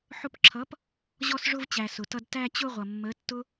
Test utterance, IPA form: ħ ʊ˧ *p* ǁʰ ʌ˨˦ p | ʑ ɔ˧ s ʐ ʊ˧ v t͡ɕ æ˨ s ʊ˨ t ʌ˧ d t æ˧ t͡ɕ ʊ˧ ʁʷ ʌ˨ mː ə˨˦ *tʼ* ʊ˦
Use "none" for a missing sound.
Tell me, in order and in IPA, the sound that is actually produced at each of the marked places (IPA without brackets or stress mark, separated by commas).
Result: p, tː